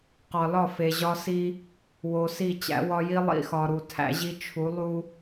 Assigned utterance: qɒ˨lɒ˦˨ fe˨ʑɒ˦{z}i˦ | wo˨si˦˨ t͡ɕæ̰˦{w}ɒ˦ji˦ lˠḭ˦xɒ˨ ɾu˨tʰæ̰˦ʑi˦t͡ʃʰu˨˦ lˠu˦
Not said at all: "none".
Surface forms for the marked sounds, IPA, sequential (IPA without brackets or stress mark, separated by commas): s, w